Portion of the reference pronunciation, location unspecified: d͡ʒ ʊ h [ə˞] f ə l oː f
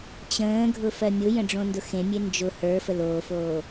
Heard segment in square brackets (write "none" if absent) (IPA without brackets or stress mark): ə˞